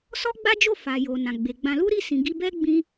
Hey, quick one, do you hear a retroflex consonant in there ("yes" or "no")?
no